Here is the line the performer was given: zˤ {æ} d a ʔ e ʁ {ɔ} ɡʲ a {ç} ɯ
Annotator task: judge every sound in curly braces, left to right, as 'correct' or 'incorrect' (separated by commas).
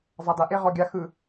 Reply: incorrect, correct, incorrect